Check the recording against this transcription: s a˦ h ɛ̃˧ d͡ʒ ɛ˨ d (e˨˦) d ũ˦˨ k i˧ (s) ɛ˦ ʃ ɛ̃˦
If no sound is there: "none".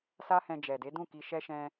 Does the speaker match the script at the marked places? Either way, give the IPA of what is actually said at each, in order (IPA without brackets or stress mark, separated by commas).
e˨˦, ʃ